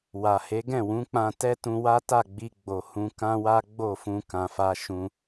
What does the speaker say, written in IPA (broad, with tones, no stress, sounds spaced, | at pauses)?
w a˨ h e˨˦ ɡ ɛ̃˦˨ w ũ˨˦ k͡p ã˧ t ɛ˦ t ũ˧ w a˦ t a˦˨ ɡ͡b i˧ ɡ͡b o˨ h ũ˧ k ã˦ w a˦ ɡ͡b o˦˨ f ũ˧ k ã˧ f a˦ ʃ ũ˦